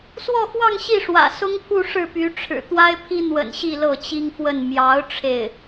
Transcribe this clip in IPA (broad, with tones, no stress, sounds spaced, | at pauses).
s w ɔ˥˧ x w ɑ˥˧ ŋ ɕ i˥˩ ʂ w ä̰˨˩ s ʊ˥ ŋ pʰ u˥˧ ʂ ɻ̩˥˩ p y˧˥ ʈ͡ʂʰ ɻ̩˨˩ t̪ w a˥ ɪ̯ pʰ i˥ n̪ w ə̰˨˩ n ɕ i˥˧ l ɤ˥˩ t͡ɕ i˥ ŋ f w ə˥˩ n m j ɑ˧˥ ʊ̯ ʈ͡ʂʰ e˥˩ ɪ̯